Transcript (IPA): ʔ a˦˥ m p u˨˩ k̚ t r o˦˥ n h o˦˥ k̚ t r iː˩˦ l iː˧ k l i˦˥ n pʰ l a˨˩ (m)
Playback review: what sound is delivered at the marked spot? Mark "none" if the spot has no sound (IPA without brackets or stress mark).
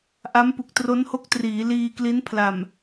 m